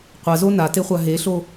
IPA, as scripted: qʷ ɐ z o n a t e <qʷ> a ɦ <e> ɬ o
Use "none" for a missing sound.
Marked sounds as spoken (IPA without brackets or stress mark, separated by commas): χʷ, e